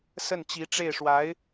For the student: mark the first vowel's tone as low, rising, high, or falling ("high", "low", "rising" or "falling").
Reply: falling